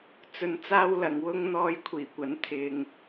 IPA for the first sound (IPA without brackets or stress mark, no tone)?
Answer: t͡s